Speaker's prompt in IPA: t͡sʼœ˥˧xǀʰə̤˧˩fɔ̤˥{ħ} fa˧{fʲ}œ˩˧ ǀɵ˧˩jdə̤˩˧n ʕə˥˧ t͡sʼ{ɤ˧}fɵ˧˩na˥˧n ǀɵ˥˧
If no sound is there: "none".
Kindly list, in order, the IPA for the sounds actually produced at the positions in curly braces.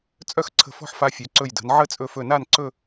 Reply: ħ, fʲ, ɵ˧

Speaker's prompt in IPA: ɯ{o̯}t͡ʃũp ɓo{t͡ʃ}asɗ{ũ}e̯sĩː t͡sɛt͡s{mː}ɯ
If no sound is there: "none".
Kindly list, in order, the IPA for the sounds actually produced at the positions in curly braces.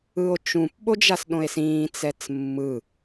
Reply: o̯, d͡ʒ, õ, mː

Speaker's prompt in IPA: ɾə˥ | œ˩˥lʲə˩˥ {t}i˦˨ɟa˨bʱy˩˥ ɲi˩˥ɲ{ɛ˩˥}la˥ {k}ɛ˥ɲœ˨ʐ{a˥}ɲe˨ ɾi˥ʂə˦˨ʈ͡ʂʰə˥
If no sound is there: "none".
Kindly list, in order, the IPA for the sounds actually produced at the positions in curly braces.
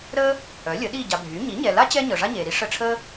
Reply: ɗ, ɛ˨, t͡ɕ, a˥

